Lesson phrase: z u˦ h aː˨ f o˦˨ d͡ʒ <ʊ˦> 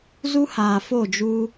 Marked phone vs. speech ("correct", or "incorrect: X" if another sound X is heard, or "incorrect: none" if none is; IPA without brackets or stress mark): incorrect: u˦